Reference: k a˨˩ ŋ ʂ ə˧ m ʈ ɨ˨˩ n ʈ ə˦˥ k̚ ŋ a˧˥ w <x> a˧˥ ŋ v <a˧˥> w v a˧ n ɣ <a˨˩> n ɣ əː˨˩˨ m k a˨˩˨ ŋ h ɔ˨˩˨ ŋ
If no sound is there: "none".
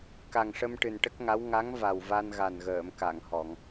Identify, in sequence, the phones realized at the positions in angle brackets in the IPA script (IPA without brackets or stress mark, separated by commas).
ŋ, a˨˩, a˨˩